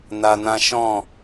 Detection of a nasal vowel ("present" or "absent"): present